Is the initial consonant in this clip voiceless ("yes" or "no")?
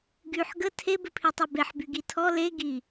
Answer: no